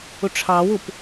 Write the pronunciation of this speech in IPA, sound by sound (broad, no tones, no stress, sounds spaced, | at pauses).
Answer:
ʊ ʈ͡ʂʰ ɑ w ʊ p